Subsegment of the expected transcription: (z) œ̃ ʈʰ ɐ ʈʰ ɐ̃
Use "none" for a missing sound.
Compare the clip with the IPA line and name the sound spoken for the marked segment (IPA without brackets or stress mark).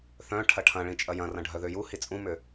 θ